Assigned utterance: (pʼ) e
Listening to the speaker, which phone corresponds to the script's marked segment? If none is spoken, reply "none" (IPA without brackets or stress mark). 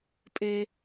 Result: pʼ